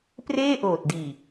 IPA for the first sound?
p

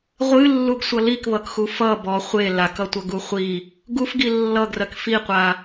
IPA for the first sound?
ʁʷ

